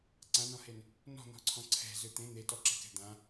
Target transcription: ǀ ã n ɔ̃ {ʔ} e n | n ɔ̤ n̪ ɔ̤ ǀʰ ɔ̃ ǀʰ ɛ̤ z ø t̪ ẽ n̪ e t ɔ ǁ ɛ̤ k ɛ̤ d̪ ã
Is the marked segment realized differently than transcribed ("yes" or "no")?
yes